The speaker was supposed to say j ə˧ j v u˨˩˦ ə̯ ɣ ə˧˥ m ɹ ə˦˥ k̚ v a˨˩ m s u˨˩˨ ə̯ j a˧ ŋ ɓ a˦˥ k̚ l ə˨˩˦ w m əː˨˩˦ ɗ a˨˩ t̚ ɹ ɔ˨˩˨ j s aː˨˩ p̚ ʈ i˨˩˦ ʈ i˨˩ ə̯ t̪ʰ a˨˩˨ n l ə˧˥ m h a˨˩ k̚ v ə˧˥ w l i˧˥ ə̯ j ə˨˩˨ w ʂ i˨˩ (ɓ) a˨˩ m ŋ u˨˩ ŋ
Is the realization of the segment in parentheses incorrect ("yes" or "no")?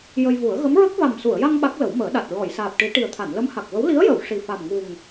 yes